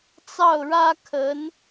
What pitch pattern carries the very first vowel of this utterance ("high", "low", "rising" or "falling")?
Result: falling